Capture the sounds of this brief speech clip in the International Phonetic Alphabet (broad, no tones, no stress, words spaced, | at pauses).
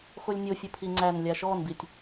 xolʲnʲo fʲəpʰiŋ͡ǀænlʲa ʃɔnbitʲ